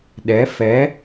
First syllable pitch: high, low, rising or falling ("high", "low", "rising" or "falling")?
rising